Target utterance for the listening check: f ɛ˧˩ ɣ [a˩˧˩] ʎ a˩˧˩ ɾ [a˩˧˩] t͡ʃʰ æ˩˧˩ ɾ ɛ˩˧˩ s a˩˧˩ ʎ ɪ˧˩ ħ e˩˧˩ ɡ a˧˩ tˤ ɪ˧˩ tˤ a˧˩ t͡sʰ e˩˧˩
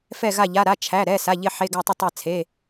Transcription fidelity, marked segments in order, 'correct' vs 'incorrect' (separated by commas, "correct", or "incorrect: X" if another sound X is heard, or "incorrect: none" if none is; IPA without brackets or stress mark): incorrect: a˧˩, correct